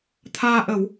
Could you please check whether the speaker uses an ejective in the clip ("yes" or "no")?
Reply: no